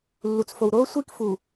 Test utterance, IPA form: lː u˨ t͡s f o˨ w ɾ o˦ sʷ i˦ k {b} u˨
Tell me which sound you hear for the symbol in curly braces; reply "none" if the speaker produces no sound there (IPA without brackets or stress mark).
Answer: f